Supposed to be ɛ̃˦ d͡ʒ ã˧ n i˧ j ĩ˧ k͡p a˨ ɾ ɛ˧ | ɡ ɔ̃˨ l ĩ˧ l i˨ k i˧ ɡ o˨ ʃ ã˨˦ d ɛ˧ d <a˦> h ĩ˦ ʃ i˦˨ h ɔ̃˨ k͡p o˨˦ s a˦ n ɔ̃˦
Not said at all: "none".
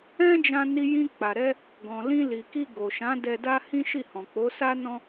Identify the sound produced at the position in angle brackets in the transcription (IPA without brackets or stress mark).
a˦